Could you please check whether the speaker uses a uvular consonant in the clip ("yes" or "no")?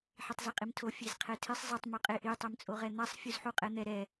yes